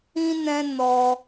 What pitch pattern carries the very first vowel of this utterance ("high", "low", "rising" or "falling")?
high